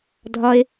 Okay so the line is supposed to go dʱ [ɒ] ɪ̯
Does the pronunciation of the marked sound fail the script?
no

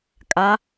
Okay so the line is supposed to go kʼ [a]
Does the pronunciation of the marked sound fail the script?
no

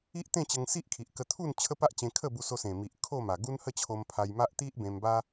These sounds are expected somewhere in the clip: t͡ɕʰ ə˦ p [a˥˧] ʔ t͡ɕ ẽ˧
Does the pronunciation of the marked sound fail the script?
yes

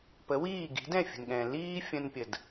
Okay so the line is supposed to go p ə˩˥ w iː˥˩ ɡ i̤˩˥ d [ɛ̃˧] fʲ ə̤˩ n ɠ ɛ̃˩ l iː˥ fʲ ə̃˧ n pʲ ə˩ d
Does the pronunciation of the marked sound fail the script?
yes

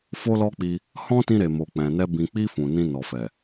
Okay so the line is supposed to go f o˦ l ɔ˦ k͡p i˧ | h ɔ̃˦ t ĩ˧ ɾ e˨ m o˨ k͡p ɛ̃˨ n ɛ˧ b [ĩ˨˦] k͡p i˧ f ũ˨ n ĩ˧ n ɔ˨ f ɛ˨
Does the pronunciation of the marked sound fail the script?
yes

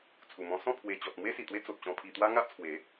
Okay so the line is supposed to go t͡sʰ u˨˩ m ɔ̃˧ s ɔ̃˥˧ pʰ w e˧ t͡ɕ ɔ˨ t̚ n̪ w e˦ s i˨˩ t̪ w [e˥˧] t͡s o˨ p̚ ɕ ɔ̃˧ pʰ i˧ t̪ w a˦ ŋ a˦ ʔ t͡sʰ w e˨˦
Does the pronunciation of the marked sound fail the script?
yes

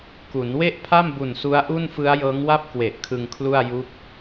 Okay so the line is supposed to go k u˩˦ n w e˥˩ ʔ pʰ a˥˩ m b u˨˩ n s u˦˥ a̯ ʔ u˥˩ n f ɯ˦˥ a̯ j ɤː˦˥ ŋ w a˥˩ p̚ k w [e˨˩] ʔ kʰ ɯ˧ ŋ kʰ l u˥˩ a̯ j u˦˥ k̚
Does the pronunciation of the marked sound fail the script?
no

